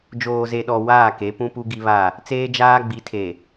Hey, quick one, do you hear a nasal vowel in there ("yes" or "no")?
yes